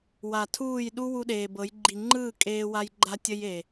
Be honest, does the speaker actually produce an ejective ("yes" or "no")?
yes